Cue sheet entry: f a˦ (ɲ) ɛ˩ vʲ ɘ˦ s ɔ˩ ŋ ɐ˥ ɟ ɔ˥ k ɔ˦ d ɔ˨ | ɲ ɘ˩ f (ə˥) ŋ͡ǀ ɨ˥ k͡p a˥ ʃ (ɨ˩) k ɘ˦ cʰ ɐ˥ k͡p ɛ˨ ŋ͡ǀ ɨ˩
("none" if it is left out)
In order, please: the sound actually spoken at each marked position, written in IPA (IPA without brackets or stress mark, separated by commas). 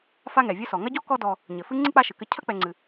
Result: ŋ, ɨ˥, ɨ˩